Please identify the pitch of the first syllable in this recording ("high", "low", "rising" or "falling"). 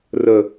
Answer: low